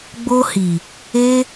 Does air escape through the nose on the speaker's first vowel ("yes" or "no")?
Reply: no